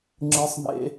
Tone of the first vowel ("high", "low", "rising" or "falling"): high